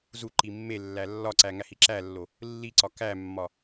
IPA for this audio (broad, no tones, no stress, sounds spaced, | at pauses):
z u ǃ i mː e lː æ lː ɒ ǀ æ ŋ æ h i ǁ æ lː o | lː i ǀ ɒ k æ mː ɒ